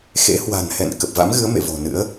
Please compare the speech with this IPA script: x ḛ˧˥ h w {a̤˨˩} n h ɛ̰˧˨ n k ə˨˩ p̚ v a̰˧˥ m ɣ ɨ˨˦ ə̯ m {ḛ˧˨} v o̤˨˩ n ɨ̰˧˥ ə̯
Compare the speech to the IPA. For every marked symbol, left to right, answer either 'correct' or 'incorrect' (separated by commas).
correct, correct